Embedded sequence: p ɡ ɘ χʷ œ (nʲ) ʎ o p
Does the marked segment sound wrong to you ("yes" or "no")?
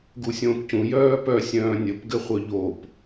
yes